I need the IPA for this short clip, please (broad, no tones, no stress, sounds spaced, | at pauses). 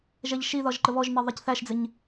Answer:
ʒ ɛ ʎ ʃ i ð ɒ ʒ ǃ ə β ɔ ʒ n ɛ ðˤ ɛ c θ æ ʃ d͡z ɪ ɲ